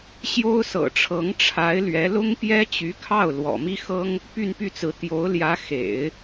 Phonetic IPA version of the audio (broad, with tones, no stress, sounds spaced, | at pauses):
ɕ j o˥ ʊ̯ s ɤ̰˨˩ ʈ͡ʂʰ ɤ˧˥ ŋ ʈ͡ʂʰ a˧˥ ɪ̯ l ɥ ɛ˧˥ l ʊ˥ ŋ p j ɛ˥ t͡ɕ y˧˥ kʰ ɑ˥˩ ʊ̯ l w ɔ̰˨˩ m i˥ x ɤ˥ ŋ | p y˥˧ n p y˥˩ t͡s ɹ̩˧˥ t̪ j o˧˥ ʊ̯ l j ä˧˥ x ḛ˨˩˦ ɪ̯